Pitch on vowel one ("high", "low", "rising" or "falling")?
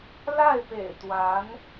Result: falling